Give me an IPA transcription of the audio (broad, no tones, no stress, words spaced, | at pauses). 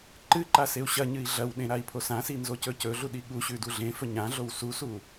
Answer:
ǃɨǃa seu̯ɕɐɲɨi̯ ɮɐwɗẽ ɾai̯pʰosãsi nzocɵcɵɮu ɗiɠuɕʉ duɮẽfɵ ɲãɮow susu